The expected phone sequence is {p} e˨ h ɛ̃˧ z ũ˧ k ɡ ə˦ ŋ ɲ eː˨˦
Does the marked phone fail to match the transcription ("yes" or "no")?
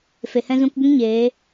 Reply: yes